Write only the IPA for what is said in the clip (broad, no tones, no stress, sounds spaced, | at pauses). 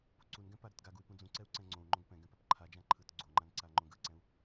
p u ǀ u n ɡ ɛ̃ p a ɾ ɯ t ɡ a ɡ u y̯ p ũ d͡z ũ ǀ ɛ u̯ ǀ ɛ̃ ŋ͡ǀ õ u̯ ŋ͡ǃ õ ɡ p ɛ̃ ɡ ɛ̃ p a p ǃʰ a d͡ʒ ã ǃʰ ɯ t ɡ͡ǀ o ŋ͡ǃ ã n ǀ a ŋ͡ǃ õ ɡ ɯ ǀ ɛ̃ u̯